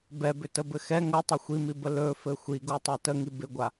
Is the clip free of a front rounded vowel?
no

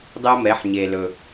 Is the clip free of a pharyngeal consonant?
no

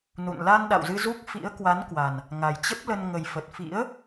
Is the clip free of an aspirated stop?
yes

